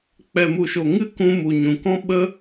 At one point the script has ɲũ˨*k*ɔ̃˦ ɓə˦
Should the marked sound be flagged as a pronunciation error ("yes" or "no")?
no